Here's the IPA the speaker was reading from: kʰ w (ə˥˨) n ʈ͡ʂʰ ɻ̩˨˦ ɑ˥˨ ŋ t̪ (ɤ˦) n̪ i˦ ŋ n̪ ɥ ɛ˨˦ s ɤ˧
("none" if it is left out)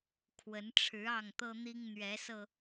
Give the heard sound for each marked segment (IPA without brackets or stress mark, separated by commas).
ə˨˦, ɤ˦